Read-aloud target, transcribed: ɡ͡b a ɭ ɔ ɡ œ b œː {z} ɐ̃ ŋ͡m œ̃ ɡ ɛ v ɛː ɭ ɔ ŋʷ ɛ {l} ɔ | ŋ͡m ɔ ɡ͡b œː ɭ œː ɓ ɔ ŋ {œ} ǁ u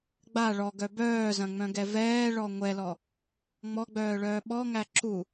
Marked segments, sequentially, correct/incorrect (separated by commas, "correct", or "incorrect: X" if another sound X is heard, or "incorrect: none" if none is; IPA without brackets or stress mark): correct, correct, incorrect: æ